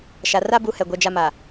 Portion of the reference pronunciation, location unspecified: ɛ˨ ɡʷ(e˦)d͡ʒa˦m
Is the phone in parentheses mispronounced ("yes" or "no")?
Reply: yes